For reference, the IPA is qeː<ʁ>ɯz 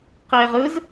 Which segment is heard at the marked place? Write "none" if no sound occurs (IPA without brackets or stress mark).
ʁ